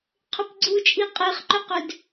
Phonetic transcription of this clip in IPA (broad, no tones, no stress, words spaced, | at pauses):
qʰʏpɡ͡ǀut͡ʃʼi qʼeχǃʏqʏd